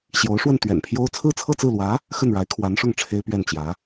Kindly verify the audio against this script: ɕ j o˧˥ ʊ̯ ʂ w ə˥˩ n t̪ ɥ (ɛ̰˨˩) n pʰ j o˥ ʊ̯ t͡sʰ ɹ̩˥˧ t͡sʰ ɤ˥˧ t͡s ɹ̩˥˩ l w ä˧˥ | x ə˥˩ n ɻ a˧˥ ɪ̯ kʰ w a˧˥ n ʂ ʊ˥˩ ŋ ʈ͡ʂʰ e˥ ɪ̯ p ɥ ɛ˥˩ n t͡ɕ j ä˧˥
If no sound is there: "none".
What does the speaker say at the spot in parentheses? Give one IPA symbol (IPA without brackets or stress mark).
ɛ̰˨˩